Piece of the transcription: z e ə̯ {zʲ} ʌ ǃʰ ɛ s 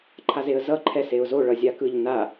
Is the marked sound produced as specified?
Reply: no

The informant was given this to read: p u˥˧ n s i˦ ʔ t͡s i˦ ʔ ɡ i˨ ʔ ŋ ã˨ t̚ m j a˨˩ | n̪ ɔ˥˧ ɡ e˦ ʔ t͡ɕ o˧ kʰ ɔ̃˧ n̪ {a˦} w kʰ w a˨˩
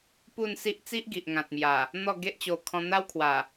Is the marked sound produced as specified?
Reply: yes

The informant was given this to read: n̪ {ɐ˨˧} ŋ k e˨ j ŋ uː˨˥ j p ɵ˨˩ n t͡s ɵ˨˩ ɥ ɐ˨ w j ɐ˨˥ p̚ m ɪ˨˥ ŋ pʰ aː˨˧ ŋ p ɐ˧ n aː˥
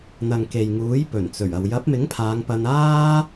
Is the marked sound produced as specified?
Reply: no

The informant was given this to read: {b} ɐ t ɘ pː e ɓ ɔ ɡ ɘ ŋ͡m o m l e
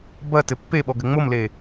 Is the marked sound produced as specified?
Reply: yes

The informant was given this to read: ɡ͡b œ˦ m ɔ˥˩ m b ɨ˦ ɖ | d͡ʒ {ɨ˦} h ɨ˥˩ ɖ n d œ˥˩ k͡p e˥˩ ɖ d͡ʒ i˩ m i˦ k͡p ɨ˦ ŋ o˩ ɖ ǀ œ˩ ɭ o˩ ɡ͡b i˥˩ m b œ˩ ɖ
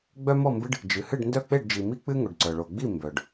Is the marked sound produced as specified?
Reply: no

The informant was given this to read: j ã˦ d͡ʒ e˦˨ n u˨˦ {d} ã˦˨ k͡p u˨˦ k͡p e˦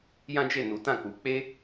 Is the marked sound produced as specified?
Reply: no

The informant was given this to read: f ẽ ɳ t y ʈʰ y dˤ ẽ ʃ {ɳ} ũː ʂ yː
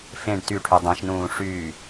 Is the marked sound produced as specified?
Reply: no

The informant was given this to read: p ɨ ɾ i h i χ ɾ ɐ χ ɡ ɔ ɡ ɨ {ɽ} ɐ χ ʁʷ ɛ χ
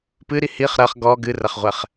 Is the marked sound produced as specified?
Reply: no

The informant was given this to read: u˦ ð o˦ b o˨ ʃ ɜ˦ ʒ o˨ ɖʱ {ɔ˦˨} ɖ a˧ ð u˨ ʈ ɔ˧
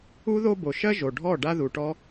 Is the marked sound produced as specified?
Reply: yes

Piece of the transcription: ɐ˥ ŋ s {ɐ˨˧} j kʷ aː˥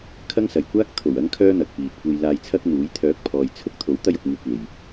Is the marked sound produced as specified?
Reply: no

